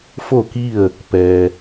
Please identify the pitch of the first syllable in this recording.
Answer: falling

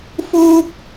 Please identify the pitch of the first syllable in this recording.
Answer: high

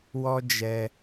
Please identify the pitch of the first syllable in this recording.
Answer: high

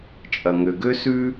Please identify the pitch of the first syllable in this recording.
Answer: low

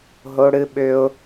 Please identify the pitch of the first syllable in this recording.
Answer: high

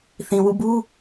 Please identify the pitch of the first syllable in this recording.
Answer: low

